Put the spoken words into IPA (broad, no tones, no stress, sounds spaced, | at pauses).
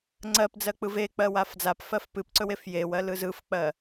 ŋ͡ǀ ɜ p d͡z ɜ k͡p ɯ v e k͡p ɜ w a f d͡z a p f ɜ f p ɨ p ǀ ɵ w e f j e w ɜ l ɯ z ɯ f k͡p ɜ